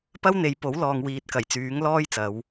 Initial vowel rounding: unrounded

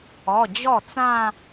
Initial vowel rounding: rounded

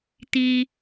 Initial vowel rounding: unrounded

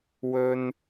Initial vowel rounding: rounded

